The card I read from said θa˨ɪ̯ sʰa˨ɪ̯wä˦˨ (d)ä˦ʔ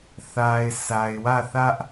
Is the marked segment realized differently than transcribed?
yes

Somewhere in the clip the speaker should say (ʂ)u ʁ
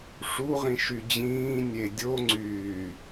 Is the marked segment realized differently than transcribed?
no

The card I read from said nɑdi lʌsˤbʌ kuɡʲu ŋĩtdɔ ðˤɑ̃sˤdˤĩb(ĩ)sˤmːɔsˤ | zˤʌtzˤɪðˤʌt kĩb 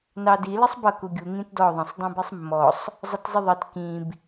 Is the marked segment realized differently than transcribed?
yes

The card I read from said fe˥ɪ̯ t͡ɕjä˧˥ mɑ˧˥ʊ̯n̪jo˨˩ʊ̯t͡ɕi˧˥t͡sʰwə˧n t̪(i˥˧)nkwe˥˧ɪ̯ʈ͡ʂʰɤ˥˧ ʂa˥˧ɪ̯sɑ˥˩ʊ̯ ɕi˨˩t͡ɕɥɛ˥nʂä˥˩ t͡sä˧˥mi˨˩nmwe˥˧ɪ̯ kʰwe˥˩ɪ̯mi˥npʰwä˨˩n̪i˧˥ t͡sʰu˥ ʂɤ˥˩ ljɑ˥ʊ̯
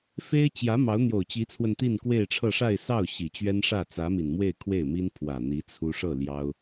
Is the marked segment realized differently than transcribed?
no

